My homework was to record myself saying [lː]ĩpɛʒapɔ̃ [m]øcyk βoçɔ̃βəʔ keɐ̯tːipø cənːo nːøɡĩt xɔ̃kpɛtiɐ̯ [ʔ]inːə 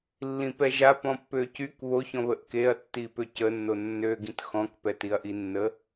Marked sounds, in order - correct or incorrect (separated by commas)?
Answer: correct, incorrect, correct